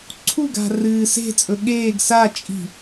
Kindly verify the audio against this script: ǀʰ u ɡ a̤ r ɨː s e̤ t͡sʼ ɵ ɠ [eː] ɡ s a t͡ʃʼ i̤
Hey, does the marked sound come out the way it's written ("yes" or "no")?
yes